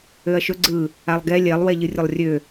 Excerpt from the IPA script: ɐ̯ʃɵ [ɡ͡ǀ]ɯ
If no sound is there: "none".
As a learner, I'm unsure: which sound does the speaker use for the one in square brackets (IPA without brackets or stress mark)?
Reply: ɡ͡ǀ